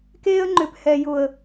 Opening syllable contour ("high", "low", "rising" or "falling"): high